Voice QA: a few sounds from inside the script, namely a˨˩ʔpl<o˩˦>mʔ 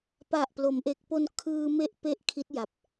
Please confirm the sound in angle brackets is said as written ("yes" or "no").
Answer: yes